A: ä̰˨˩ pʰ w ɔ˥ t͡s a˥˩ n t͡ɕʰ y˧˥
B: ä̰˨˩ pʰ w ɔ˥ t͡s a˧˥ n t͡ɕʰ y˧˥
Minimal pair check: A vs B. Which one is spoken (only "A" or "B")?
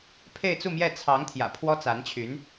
B